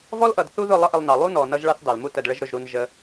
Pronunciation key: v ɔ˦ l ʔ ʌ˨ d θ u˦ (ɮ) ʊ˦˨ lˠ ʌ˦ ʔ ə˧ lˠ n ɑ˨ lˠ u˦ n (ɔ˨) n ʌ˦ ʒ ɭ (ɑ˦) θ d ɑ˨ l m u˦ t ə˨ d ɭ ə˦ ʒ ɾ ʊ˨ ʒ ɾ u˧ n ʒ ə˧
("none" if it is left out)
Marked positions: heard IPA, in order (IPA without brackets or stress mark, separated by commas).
ð, ɔ˨, ɑ˦